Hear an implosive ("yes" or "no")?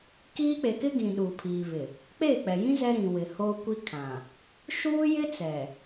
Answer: yes